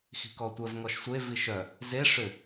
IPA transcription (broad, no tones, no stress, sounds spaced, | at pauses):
x i̤ k ɔ tʷ œ v ŋ ɔ ʃ sʷ e v i ʃ œ | z e ʂ ʏ